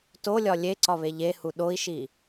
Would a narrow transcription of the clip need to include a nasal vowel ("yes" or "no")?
no